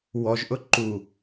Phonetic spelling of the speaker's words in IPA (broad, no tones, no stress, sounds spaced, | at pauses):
w ɔ ʒ ʔ ʊ ǃ u